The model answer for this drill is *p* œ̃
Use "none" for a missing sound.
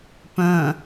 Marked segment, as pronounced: p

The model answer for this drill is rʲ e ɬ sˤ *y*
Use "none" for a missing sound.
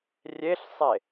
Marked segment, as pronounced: e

